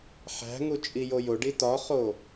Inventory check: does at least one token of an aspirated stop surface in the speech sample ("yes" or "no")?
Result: no